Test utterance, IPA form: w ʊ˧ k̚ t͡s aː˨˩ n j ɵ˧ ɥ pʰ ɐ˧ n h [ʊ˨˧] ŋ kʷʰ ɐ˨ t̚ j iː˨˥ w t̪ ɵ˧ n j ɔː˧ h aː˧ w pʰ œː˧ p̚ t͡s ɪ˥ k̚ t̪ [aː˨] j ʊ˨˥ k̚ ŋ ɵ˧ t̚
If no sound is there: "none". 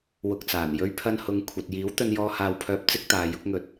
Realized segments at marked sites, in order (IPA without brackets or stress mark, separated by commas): ʊ˨˧, aː˨